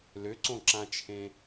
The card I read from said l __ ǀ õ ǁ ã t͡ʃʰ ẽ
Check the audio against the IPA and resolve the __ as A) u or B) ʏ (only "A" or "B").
B